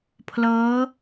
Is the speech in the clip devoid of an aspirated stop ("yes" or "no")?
no